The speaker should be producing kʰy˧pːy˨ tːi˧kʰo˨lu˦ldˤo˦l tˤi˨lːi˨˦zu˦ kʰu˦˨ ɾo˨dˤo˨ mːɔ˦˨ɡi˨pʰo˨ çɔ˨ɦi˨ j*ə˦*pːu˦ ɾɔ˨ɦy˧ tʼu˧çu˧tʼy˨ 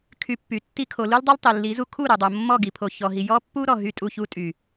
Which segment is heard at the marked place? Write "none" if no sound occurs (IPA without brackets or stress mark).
ɔ˦